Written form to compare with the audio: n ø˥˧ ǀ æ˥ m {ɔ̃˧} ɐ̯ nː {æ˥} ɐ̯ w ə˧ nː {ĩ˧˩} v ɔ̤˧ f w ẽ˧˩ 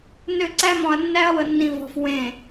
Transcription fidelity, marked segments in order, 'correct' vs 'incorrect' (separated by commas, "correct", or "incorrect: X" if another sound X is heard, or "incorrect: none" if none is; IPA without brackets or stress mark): correct, correct, incorrect: ĩ˧